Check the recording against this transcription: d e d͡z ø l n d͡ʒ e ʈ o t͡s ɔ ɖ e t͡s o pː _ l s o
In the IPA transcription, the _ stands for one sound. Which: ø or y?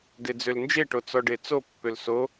ø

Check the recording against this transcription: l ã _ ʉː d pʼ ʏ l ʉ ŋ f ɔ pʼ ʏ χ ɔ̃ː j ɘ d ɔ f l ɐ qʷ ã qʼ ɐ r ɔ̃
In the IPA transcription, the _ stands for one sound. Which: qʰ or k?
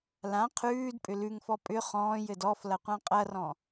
qʰ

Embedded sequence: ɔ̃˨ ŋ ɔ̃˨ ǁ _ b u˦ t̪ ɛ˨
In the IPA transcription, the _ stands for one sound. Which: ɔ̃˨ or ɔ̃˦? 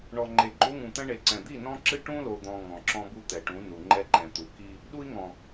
ɔ̃˦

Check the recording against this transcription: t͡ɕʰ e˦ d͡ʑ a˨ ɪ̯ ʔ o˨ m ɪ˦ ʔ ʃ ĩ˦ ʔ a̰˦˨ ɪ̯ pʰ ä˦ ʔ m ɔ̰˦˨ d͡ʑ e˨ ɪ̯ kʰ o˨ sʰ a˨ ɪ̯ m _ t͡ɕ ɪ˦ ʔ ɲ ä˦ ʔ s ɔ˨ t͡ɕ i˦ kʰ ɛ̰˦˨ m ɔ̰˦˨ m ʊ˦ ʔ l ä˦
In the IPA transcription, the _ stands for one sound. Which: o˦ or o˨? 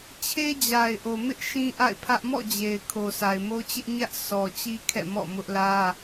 o˦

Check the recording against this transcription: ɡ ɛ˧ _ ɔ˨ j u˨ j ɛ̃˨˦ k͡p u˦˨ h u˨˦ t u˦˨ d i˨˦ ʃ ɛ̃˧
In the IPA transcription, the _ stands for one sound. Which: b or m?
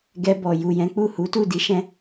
b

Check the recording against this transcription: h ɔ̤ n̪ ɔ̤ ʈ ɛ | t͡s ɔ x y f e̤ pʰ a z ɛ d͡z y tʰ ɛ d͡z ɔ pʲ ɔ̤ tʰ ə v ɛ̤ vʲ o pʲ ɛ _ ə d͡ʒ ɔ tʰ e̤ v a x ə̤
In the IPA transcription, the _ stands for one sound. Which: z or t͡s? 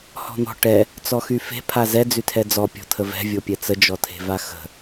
t͡s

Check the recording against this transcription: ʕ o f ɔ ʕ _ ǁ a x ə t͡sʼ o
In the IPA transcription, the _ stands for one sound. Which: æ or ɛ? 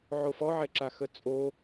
ɛ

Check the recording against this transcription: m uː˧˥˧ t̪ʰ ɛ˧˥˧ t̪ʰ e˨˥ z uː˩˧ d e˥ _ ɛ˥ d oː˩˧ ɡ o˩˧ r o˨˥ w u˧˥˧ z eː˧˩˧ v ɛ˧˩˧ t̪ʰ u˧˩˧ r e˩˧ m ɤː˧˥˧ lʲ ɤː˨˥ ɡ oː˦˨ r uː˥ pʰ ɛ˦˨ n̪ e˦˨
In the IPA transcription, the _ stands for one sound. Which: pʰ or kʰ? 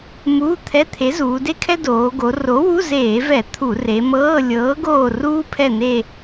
kʰ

